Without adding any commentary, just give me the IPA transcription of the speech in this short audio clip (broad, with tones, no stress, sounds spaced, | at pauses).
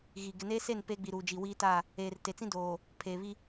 ɣ i˨ ɡ ɪ˨ n eː˦ s e˦˨ n p eː˦ ɡ͡b i˨ ɾ uː˨ d͡ʒ i˨ w iː˦ t a˦˨ | eː˨ r t e˨ t͡s ĩ˦ d oː˨ | pʰ eː˨ β i˦